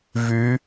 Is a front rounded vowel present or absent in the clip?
present